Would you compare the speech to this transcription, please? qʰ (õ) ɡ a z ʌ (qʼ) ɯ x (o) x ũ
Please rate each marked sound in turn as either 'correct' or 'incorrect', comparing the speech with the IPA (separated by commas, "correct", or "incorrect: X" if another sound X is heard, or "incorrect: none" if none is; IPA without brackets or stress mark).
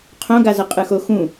correct, correct, correct